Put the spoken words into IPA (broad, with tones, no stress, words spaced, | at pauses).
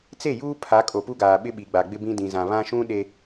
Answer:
t͡se˦˨juː˦ pʰa˨˦kʼo˨pu˦ɡaː˨ ɓɪ˦ɓi˨ɡ͡ba˨ ɡ͡bɪ˦bĩ˦ dĩ˨zã˨ βã˦ʃũ˦ ɗe˨